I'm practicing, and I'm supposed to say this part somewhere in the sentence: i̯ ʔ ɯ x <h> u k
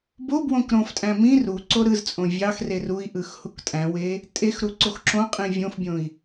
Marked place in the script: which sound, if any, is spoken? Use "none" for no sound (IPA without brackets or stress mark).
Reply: h